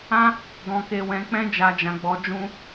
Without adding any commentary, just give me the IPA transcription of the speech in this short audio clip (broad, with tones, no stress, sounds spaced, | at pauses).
ã˦ | ɡ ɔ̃˧ k e˧ w ɛ̃˧ k͡p ɛ̃˦ d͡ʒ a˧ d͡ʒ ã˧ ɡ͡b ɔ˧ d͡ʒ ũ˦